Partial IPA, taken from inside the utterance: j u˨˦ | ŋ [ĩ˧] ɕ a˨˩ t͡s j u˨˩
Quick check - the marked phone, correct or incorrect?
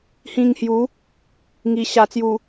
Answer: incorrect